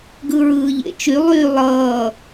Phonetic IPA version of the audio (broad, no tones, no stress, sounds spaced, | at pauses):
ɡ ɯ ɹ ɯː ʎ ḛ t͡ʃ y lˠ yː lˠ ʌː